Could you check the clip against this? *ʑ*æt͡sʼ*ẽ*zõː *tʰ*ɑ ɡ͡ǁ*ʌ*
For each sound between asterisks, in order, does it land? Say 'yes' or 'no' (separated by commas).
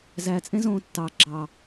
no, yes, no, no